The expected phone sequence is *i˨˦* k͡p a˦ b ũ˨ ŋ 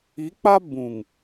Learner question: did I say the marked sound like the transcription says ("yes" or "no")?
yes